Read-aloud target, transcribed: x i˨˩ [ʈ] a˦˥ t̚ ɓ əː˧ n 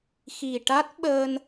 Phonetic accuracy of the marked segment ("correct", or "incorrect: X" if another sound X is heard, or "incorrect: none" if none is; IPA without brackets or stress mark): correct